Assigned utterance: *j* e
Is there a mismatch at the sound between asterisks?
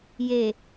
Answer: no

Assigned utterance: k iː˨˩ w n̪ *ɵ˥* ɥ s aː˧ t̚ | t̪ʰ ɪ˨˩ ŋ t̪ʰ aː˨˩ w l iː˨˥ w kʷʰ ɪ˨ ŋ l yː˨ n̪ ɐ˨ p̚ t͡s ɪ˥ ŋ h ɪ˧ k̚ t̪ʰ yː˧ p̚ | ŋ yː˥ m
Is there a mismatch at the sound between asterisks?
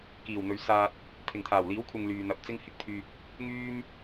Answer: yes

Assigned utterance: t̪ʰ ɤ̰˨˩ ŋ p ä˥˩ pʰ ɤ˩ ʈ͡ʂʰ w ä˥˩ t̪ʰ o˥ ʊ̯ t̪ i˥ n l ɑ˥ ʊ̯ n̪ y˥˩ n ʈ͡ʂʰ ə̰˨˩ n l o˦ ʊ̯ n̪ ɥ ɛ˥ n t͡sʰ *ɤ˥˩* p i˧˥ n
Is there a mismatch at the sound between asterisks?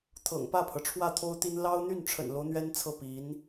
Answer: no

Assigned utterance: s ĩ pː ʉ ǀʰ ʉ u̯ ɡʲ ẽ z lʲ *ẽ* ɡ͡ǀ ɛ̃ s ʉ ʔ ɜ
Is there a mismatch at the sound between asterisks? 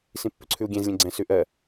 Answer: no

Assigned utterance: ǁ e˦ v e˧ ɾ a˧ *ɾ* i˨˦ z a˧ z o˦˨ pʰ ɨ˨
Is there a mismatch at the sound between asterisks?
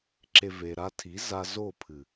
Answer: yes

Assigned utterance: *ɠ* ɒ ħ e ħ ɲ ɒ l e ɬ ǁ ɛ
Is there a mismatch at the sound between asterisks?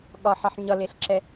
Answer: no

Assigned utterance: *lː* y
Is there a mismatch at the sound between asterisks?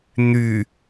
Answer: yes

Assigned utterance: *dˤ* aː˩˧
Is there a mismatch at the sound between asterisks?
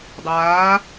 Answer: no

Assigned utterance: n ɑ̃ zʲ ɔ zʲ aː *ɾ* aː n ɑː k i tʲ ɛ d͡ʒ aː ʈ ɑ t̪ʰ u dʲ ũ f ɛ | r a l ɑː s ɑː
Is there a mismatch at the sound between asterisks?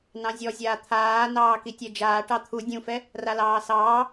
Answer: yes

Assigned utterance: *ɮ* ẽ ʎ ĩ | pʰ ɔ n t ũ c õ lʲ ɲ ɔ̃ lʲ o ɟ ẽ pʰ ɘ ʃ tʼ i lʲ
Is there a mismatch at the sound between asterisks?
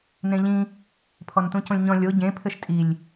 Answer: yes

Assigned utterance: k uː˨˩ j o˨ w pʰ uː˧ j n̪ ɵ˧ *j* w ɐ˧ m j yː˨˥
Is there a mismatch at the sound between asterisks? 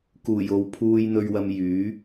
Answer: yes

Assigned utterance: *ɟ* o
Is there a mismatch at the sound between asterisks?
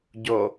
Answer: no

